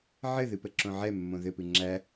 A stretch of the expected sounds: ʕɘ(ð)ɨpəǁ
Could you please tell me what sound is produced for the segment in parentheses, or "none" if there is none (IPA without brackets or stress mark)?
ð